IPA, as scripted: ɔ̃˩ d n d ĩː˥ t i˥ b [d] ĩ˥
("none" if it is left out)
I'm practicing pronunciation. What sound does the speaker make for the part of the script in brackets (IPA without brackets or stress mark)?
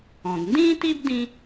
d